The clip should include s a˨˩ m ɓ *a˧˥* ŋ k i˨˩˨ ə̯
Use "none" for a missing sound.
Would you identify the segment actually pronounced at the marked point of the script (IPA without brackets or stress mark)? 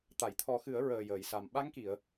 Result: a˧˥